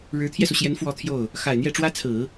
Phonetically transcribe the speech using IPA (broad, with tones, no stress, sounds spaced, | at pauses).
ɻ ɻ̩˧˥ t̪ʰ j ɛ˧ s u˩ ɕ j ɛ˧˥ n f w ɔ˥˧ t̪ʰ j o˥˩ ʊ̯ | x a˨˩ ɪ̯ n̪ j ɛ˥˩ ʈ͡ʂ w ä˥ t͡sʰ ɹ̩˨˩˦